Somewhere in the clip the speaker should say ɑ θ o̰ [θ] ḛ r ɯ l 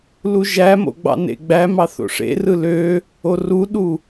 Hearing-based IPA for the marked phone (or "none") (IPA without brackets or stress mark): ʂ